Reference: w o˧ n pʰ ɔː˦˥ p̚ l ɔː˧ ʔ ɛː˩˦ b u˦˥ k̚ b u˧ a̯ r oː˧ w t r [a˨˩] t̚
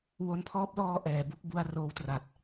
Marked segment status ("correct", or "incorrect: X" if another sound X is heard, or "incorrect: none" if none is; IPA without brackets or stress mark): correct